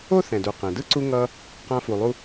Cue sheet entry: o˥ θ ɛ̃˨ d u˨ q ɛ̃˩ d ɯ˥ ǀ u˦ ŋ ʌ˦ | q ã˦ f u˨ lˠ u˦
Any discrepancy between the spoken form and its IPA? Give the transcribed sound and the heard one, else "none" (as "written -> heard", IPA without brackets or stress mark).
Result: none